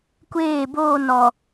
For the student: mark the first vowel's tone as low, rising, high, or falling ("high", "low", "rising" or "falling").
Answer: falling